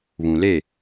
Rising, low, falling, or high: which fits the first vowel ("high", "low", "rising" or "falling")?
low